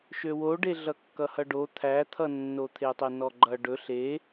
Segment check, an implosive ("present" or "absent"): absent